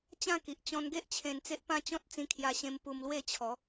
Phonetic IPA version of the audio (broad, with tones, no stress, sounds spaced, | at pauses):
t͡ɕ ã˥˧ k i˨ ʔ t͡ɕ ɔ̃˧ n ɡ e˦ ʔ t͡ɕʰ ẽ˧ n t͡s e˦ ʔ p ã˦ t͡ɕ ɔ̃˦ t̚ t͡s ĩ˧ kʰ j a˧ ɕ ẽ˧ m p u˧ m l w e˥˧ t͡ɕʰ ɔ˨˦